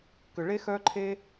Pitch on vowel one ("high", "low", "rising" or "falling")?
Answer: low